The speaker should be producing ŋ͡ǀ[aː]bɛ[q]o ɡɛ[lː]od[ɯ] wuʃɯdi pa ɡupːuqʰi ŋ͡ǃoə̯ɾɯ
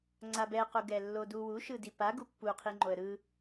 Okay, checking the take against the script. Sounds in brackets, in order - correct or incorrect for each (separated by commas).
incorrect, correct, correct, incorrect